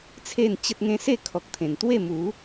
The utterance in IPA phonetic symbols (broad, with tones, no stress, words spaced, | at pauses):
t͡sʰe˥˧nt͡ɕə˦t̚ŋẽ˦ se˥˧kʰɔ˨k̚t̪ʰẽ˨˩n t̪we˥˧mu˨˦